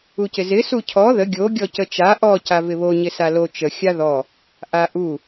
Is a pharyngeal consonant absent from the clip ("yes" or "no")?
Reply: yes